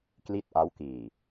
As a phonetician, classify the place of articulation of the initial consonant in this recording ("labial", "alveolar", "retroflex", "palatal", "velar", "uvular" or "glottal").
velar